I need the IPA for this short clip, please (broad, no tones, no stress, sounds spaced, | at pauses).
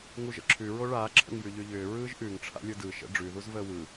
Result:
ŋ u ʒ ə̰ ǁʰ ʉ ɹ o ɭ aː ǁʰ ə̰ ŋ j ʉ ʎ ʉ ʎ ʏː ɹ ɯː ʒ ʔ ʉ ŋ ʈ͡ʂʰ a̰ lʲ ɯ d ɯ ʃ ə̰ ɖ͡ʐ ʉ ð u z v əː w ɯ